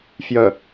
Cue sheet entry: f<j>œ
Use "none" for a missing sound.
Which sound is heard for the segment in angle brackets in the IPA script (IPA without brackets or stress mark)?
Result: j